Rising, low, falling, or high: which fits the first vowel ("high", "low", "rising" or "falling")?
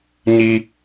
low